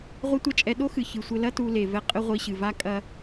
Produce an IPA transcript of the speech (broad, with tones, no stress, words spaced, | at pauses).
ʁʷɐ˥tʷɐ˥t͡ʃʼɛ˧ ɗo˥xɨ˩ çɨ˩sʷɘ˧lɐ˥ tu˧le˩ vɛ˧ qʼɘ˥ʁʷi˧ɕɨ˩ va˧ kʼɐ˧